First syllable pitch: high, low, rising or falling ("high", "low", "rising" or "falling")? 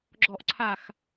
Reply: falling